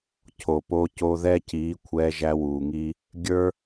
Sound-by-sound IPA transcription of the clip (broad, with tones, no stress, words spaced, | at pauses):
cʰo˨po˧ co˧ðɛ˦ciː˨˦ kʷʰɛː˧ʒæ˧wuː˨ŋiː˦ | ɡʲə˞˦